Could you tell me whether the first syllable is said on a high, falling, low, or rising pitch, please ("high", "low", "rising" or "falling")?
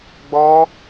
high